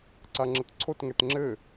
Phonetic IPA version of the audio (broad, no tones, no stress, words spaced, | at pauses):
ǀaŋ͡ǁətǀʰot ŋɛtŋ͡ǁɘ